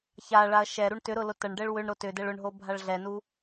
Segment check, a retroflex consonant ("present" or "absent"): present